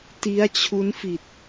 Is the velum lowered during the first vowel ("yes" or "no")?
no